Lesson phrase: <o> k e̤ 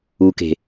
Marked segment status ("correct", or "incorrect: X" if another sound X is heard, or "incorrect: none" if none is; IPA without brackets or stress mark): incorrect: u